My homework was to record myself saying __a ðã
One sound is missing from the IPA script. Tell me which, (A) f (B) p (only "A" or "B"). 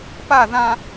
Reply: B